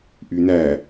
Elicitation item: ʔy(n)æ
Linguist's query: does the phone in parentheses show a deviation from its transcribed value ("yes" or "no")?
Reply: no